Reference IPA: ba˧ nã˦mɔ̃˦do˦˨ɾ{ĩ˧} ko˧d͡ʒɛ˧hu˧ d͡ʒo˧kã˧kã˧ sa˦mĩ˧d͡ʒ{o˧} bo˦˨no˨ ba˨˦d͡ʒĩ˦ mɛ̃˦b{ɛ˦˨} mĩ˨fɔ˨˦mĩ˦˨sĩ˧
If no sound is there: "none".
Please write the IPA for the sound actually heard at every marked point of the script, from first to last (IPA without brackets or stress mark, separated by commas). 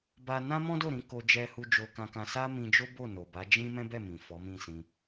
ĩ˧, o˦, ɛ˦˨